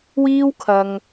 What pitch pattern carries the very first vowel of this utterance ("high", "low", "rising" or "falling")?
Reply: high